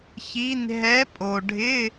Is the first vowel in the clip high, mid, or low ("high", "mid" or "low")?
high